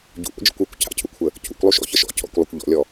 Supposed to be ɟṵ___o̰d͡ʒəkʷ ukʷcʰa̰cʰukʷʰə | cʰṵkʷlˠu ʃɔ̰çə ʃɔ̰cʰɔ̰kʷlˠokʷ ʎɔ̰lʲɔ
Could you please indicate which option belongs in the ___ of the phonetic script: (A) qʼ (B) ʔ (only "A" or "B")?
B